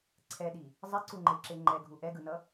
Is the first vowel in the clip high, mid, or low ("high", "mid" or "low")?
mid